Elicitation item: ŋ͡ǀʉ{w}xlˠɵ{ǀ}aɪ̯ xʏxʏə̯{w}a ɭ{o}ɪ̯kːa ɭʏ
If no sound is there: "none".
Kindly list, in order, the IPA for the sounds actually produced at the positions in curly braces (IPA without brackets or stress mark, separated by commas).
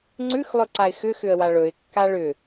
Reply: none, ǀ, w, ɵ